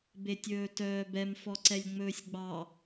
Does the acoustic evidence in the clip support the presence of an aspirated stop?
no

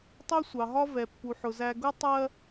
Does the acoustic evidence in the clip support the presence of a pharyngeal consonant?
yes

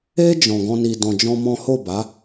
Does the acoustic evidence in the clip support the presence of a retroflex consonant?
no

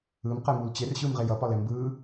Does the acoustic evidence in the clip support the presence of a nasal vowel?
no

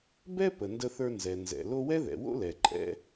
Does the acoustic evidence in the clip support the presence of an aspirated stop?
no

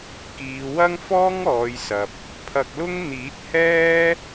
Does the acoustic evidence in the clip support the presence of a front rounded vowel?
no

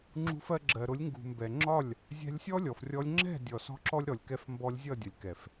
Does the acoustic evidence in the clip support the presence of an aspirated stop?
no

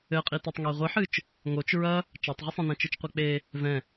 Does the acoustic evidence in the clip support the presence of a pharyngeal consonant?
yes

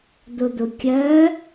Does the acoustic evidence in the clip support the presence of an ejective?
no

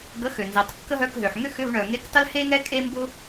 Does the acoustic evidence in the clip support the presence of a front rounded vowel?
yes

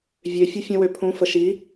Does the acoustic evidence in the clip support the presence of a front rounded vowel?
yes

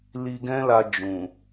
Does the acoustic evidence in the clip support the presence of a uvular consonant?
no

